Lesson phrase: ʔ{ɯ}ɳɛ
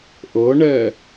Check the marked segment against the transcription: incorrect: ɤ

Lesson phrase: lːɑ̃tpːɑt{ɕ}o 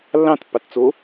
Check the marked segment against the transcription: incorrect: t͡s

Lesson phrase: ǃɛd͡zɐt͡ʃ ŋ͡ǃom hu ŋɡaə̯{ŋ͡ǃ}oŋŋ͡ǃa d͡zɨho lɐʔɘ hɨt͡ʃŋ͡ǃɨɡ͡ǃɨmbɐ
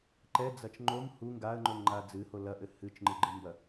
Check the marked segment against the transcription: correct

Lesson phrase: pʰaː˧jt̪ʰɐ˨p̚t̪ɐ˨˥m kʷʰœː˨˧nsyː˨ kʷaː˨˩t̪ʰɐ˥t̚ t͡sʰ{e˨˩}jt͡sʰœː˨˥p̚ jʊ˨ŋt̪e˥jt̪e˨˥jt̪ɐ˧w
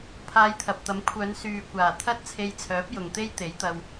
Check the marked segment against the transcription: incorrect: e˧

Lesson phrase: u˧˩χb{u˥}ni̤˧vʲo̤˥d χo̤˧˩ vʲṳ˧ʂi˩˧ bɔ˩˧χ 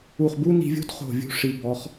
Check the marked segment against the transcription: correct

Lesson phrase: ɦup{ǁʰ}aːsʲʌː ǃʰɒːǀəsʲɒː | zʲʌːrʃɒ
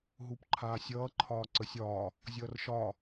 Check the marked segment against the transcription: incorrect: ǃʰ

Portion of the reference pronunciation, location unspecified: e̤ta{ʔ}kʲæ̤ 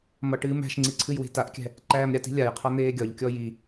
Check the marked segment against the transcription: correct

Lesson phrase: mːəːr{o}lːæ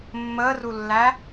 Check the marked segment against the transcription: incorrect: u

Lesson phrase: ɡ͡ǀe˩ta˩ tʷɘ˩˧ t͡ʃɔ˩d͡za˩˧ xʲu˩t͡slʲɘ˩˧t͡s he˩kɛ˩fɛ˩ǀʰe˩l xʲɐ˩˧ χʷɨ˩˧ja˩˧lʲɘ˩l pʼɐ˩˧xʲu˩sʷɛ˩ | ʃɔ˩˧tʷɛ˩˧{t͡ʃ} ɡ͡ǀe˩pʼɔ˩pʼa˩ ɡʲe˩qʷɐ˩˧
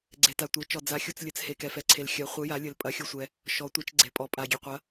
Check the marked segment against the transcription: correct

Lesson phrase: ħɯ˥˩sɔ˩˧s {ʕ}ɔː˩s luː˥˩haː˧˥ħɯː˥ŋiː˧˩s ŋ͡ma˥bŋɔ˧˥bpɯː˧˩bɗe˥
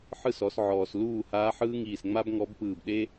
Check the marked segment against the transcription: correct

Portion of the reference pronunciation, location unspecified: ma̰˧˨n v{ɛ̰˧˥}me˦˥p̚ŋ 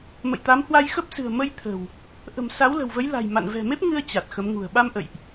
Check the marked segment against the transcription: incorrect: ɛ̤˨˩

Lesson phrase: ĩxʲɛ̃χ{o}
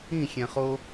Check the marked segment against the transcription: correct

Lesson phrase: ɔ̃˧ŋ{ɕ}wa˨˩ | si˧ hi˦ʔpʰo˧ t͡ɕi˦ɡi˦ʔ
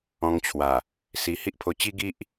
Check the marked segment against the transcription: incorrect: t͡ɕʰ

